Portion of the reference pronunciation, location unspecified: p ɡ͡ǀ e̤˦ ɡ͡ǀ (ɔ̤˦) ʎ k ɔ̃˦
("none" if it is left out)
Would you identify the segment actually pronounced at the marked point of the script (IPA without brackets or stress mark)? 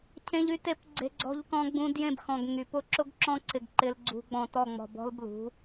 ɔ̤˦